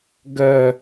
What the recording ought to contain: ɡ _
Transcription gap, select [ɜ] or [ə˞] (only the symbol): ɜ